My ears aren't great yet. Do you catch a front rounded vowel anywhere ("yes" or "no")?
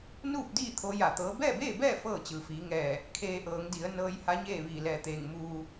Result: no